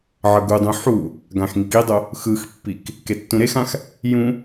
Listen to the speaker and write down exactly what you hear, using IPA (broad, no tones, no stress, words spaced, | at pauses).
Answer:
ʕʌɡudˤũ ħu | ɡãxŋikidˤo | xɯxpːik | ketːũɾexãx | jũ